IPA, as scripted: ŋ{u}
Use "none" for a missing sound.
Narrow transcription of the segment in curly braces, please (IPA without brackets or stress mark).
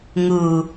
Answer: u